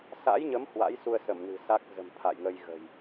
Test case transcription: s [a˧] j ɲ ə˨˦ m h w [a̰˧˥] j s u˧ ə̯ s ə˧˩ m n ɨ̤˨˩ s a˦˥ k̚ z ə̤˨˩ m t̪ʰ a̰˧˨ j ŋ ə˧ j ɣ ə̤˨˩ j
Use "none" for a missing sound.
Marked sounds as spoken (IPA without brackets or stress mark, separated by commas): a̰˧˥, a̰˧˥